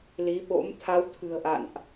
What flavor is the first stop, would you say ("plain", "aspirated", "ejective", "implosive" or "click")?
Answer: implosive